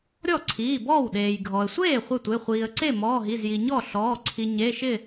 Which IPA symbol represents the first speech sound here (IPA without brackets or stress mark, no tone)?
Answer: ɾʲ